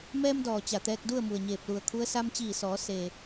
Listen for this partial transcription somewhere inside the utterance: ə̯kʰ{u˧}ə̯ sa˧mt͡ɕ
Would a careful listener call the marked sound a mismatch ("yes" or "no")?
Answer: yes